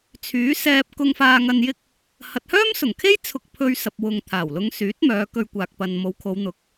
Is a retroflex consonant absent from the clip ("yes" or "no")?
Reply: yes